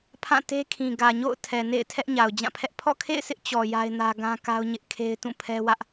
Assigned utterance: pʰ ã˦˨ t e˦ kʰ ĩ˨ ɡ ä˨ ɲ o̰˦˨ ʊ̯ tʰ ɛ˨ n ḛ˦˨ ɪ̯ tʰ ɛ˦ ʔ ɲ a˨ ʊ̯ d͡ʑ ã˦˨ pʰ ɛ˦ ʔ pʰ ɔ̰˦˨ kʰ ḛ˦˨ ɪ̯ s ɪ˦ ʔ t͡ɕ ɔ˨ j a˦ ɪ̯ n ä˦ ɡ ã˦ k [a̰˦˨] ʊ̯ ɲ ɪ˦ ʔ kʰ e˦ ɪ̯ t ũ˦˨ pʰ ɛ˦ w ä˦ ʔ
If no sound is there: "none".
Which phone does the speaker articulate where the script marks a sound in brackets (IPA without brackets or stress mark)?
a˦